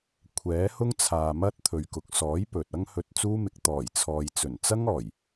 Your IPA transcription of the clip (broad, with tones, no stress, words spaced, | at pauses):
kʷʰɛː˨˥hʊ˥ŋt͡sʰaː˨ mɐ˥t̚t̪ʰɵ˨ɥkʊ˨k̚ sɔː˨˥j pɵ˨t̚ ɐ˥ŋhɵ˧t̚t͡suː˥mɪ˧k̚ t̪ɔː˨˩jt͡sʰɔː˨j t͡sɵ˨˩nt͡sɐ˥ŋɔː˨˩j